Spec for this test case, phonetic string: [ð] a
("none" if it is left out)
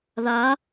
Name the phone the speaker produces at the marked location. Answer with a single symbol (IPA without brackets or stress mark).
ð